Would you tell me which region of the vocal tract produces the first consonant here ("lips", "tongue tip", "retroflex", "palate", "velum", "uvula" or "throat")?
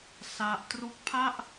tongue tip